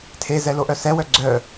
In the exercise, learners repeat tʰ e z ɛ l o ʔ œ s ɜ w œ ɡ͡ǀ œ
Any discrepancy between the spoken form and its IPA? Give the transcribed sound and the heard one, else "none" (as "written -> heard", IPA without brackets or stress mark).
ɜ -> ɛ